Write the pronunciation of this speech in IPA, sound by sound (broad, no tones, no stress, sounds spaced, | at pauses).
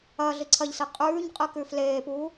ɐː ɮ i ǀʰ ɐ ʎ s i qʼ ʉː ɲ qʼ ɨ k ʉ f l eː p uː